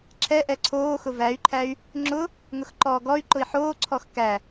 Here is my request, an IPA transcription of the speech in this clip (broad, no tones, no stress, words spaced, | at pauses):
ǁʰɛ ʔɛǀʰoːxʊ væy̯ǃʰæy̯ | ŋ͡ǁʊ | ŋʊxǃɔːɡɔy̯ǃʊi̯ ħoːǀʰɔx kæ